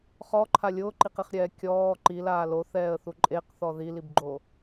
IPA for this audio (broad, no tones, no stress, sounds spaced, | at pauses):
χ ɔ ǃʰ a lʲ ʊː ǃ i q i χ ɾʲ ɛː kʲ ɔː ǃ i l aː l o θ ɛː ə̯ θ u ǃʼ e q θ ɔ ð i l i b ɡ͡ǃ o